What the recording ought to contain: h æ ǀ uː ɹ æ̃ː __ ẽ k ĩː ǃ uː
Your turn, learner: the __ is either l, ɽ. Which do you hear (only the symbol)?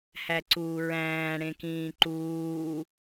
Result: ɽ